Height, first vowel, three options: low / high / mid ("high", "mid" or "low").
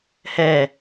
mid